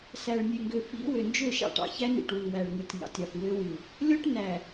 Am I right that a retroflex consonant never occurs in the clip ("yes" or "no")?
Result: no